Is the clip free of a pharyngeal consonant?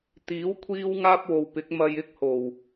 yes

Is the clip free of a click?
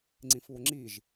no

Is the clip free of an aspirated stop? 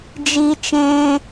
yes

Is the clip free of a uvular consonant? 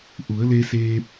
yes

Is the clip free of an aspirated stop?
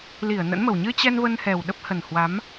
yes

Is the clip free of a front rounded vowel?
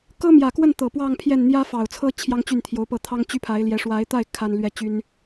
no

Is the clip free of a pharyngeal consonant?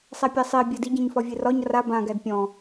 yes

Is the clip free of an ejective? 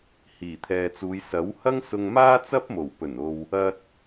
yes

